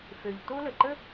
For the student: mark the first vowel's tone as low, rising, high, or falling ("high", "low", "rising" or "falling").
low